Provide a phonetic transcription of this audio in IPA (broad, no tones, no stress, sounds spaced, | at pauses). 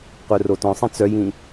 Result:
qʷ œ r o t ɔ̃ sˤ ĩ t͡s œ j ĩ